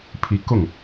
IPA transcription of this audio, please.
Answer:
pʰ i˧˥ k ʊ˥˩ ŋ

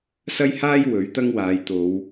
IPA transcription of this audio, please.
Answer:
s ɐ˥ j h aː˥ j w ɵ˨˥ ɥ t̪ ɐ˥ ŋ w aː˨˧ j t̪ o˨˧ w

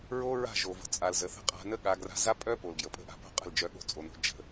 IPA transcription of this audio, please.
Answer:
ɹ o˦ ɹ a̤˦˨ ʒ o˨ v ə̤˨ t͡sʼ a˨ l z ə˨ θ ə̤˧ qʼ a̤˧ n ə˦ ɠ a˧ ɡ r a̤˧ z a˦ pʼ œ˦ p o˨ l ɡ j ə˨ pʼ ə̤˦ ʔ a̤˧ p o̤˦ qʼ ə̤˦˨ l d͡ʒ œ˧ ɠ o̤˧ t͡sʼ o˨ n o̤˧ d͡ʒ ə̤˧

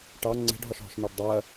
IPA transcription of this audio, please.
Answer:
ʈ ɑ ŋ͡ǀ ɛ̤ ɖ ɦ ɒ ʃ ɦ ɔ̤ ʃ n ɜ ɖ dˤ ɜ

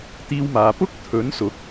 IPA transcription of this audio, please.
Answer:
t̪ iː˧ w m aː˨ p ʊ˥ k̚ t̪ʰ ɵ˨˥ n s ʊ˨˥ k̚

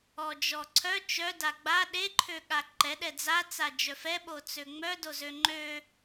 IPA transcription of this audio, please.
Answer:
ɔ d͡ʒ ɔ ǀʰ œ t͡ʃ œ d a ɡ͡b a ɗ e ǃʰ ø ɠ a ǃ ɛ ɗ ɛ d͡z a t͡s a d͡ʒ œ f ɛ ɓ o t͡s ø ŋ͡m œ d o z ø ŋ͡ǃ ø

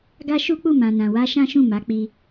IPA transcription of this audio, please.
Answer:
ɡ a˦ ʃ u˦ k͡p u˦˨ m ã˨ n ã˨ w a˧ ʃ ã˦ ʃ ũ˦˨ m a˨˦ k͡p i˧

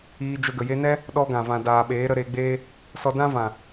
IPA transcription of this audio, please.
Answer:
iː˧ d͡ʒ ə˧ ɡ ə˨ j e˧ n ɛ˦ | ɗ ɔ˧ ɡ ã˨ v ã˨ d aː˨ ɓ eː˨˦ ɾ ə˧ ɾ e˧ ɡ͡b eː˦ | s ɔ˧ d ã˦ v ã˨

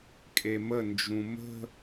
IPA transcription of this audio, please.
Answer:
kʼ e m ə n d͡ʒ ũ m ə̤

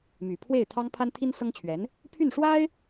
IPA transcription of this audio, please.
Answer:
m y˨˩ pʰ w e˥˩ ɪ̯ t̪ʰ ɑ˥ ŋ pʰ a˥ n t̪ʰ i˥ n s ɤ˥ ŋ t͡ɕʰ ɥ ɛ˧˥ n | pʰ y˥˩ n ʂ w a˥ ɪ̯

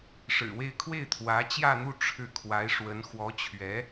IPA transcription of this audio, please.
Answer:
ʂ ɻ̩˨˩ w e˥˧ ɪ̯ kʰ w e˥˩ ɪ̯ t̪ʰ w ä˧˥ t͡ɕ j ä˥˧ n̪ u˥˧ ʈ͡ʂʰ ɻ̩˥˩ kʰ w a˧˥ ɪ̯ ʂ w ə˧˥ n x w ɔ˧˥ t͡ɕʰ ɥ ɛ˧˥

